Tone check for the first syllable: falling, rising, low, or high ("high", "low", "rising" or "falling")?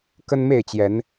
high